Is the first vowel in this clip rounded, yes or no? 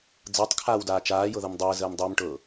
no